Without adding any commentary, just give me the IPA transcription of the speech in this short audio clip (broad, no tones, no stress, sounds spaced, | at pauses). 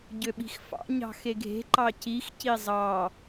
ɟ ø ɓ i̤ x f ɑ̰ ɲ ɑ̤ x e ɡʱ e̤ ǃ ɑ c i x c i zˤ ɑ